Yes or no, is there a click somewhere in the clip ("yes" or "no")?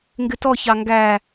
no